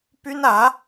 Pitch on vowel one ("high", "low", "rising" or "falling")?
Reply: high